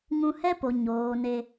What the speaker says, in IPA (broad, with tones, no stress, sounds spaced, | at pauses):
ŋ ũ˧ h ɛ˦ p o˨ ɲ oː˨ n e˧